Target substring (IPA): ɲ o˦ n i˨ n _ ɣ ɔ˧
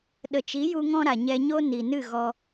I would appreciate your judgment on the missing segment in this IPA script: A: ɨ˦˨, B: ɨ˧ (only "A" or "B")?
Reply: A